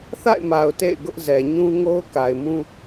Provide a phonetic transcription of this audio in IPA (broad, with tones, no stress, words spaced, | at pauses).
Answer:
θa̰˦˨ɪ̯ma˨ʊ̯ tḛ˦˨ɪ̯ɡʊ˦ʔ zɛ˨ɲũ˦ ŋo˦ʊ̯ka˨ɪ̯mũ˦